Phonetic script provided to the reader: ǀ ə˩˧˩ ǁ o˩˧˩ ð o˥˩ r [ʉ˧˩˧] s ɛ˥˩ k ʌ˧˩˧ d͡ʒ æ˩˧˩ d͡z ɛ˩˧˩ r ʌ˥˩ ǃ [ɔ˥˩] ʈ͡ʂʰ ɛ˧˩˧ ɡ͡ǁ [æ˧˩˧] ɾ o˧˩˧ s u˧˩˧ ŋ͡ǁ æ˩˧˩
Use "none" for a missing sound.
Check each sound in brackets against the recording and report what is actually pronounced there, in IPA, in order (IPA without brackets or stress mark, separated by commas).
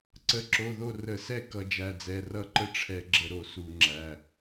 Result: ə˧˩˧, ə˥˩, ə˧˩˧